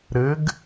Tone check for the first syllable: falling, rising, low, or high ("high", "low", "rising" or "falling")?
rising